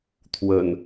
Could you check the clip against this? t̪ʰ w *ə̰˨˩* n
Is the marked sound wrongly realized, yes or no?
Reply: no